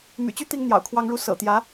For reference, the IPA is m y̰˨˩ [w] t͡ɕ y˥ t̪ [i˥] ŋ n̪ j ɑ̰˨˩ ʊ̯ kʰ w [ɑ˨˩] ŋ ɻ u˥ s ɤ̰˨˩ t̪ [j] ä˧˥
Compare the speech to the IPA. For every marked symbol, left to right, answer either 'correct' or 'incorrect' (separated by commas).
incorrect, correct, incorrect, correct